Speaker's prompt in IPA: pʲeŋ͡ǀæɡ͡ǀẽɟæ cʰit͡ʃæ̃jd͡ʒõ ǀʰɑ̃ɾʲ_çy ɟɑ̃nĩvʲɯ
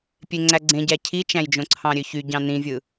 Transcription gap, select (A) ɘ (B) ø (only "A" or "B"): B